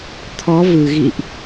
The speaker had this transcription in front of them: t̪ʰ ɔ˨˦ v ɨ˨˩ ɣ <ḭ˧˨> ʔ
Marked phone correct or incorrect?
correct